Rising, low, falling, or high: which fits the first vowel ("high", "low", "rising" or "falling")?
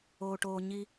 low